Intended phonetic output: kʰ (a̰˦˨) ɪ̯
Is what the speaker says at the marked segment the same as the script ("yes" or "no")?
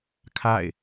yes